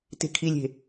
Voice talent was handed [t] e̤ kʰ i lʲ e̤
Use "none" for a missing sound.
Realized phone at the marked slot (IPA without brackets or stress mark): t